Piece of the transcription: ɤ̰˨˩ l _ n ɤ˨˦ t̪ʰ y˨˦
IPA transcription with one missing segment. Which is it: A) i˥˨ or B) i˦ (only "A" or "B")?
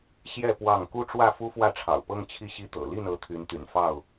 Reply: A